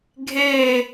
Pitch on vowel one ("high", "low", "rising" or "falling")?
falling